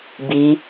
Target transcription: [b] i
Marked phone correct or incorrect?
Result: correct